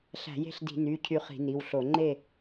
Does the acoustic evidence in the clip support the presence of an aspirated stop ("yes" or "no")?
yes